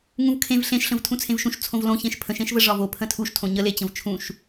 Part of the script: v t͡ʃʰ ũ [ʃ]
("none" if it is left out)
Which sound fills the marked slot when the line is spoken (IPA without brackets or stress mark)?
ʃ